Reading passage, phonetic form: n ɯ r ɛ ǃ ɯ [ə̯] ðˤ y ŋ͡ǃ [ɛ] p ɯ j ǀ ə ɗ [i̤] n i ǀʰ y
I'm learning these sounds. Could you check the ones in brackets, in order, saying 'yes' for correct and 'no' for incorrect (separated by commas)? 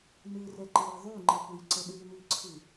no, no, no